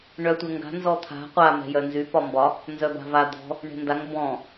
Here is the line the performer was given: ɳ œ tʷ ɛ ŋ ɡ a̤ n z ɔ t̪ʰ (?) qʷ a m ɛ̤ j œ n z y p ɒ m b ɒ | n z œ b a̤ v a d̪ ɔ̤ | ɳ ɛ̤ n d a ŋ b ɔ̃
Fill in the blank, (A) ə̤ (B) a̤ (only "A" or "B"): B